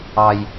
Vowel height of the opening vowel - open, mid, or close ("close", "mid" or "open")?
open